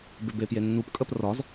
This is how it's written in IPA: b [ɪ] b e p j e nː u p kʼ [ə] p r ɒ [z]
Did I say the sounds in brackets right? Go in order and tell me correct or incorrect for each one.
correct, correct, correct

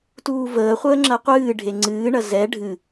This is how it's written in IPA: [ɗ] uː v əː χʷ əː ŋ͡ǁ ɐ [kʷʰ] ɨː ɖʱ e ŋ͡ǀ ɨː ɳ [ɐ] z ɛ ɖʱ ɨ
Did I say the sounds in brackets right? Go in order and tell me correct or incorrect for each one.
incorrect: t, incorrect: qʷ, correct

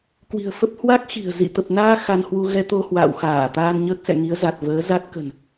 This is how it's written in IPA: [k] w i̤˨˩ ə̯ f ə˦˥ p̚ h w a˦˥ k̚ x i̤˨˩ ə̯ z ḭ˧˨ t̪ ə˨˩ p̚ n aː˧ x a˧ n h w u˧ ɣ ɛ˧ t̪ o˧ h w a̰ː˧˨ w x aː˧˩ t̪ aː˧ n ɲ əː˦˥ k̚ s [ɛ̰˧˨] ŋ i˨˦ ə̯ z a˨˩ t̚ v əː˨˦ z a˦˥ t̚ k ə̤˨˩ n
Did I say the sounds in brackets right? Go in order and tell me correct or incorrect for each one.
correct, correct

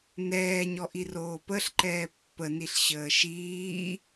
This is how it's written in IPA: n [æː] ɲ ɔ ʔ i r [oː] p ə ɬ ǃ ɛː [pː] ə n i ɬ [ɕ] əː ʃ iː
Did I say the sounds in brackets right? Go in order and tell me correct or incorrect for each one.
incorrect: ɛː, correct, correct, correct

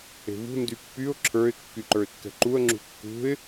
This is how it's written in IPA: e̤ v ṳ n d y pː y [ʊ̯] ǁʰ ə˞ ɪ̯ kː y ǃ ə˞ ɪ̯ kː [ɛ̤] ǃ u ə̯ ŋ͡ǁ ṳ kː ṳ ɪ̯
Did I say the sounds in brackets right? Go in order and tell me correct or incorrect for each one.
correct, correct

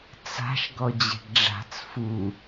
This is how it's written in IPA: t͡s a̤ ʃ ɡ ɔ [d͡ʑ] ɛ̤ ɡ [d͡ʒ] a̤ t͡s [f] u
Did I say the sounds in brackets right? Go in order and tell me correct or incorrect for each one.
correct, incorrect: ɖ͡ʐ, correct

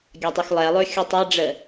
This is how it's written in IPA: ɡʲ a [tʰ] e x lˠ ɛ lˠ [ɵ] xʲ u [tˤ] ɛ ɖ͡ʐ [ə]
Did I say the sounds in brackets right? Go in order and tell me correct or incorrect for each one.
incorrect: tˤ, correct, correct, correct

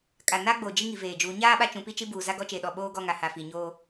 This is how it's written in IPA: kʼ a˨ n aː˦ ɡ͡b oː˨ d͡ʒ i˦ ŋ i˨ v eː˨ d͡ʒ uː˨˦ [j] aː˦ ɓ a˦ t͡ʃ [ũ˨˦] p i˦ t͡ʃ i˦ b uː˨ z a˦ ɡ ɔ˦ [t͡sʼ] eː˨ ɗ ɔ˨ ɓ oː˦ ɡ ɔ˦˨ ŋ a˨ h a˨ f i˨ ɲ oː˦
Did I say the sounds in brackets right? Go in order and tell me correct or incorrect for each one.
incorrect: ɲ, correct, incorrect: t͡ʃ

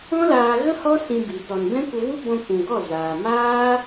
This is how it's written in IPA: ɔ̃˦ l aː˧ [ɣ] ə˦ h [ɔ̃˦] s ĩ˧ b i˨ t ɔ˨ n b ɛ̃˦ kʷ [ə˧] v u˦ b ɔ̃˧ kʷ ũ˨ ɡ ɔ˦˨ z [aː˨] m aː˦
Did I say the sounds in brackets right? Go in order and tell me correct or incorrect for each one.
correct, incorrect: ɔ˦, correct, correct

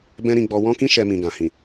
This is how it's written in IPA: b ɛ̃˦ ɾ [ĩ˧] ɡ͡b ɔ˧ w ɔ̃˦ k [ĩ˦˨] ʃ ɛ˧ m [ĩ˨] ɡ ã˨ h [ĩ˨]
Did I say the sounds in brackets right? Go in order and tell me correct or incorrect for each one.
correct, incorrect: ĩ˦, correct, correct

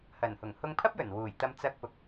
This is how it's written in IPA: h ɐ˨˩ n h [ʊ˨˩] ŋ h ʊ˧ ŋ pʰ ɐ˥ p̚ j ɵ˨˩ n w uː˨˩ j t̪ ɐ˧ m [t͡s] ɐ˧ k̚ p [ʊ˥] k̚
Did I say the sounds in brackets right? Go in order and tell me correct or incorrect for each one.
correct, correct, incorrect: ʊ˨

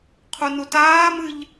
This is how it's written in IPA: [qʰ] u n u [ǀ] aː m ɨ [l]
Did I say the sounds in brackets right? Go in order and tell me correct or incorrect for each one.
correct, incorrect: t, incorrect: ʎ

